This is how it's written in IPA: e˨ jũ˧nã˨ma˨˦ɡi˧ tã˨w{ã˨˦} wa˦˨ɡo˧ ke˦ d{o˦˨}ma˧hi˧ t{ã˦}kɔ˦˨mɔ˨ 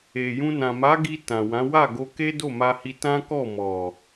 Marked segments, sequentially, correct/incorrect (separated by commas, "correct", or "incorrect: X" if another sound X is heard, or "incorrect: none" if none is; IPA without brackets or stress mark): correct, correct, correct